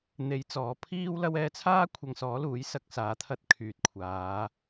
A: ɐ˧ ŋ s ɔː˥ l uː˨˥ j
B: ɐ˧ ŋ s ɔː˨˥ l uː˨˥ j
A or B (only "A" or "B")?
B